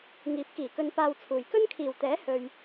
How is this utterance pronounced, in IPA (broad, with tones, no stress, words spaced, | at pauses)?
ŋiː˨˥p̚kiː˨˩kɵ˧n paː˧wt͡sʰuː˨j kɵ˥nkʰiː˨˩wt̪ɛː˨˥ hɵ˧ɥ